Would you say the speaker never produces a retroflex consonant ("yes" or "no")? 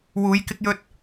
yes